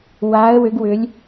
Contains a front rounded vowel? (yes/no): yes